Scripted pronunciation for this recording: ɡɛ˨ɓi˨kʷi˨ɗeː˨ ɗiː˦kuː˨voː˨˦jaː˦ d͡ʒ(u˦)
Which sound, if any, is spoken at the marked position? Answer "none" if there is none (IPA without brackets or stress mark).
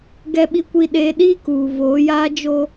o˦